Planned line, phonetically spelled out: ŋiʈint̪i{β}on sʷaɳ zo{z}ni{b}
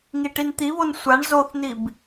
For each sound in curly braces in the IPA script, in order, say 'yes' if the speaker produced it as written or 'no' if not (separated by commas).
yes, no, yes